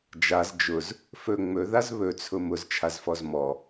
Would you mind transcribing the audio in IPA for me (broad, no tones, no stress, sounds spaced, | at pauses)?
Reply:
d͡ʒ a z d͡ʒ ʊ z | f ɵ ŋ͡m ɵ ð a z β ɵ t͡sʰ ʊ m ʊ z t͡ʃʰ a z f ɔ z m ɔ